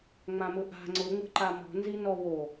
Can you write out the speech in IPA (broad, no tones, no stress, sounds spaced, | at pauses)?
ŋ͡m ã m ʊ ʔ a̤ ŋ͡ǀ ʊ ŋ͡m ə̤ ǃ a m ɔ̤ n z i n ɔ w o